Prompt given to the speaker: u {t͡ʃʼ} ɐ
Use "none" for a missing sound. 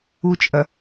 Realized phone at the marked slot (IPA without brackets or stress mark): t͡ʃʼ